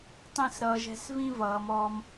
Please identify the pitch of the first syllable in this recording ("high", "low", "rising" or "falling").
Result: falling